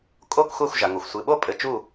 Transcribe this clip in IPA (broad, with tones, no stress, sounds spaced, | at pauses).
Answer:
kʼ o˥˨ k xʷ a˥˨ xʷ ʒ a˩ ŋ o˩ xʷ sʷ ɨ˩˧˩ ɓ o˥˨ pʼ ɘ˧˩ t͡ʃ u˥˨